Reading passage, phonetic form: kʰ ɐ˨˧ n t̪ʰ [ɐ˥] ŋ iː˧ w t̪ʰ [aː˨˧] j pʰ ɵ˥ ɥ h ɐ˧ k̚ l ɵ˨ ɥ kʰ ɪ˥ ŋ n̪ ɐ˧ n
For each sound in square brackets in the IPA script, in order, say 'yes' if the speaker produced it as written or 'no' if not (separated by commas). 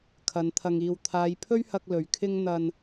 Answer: no, yes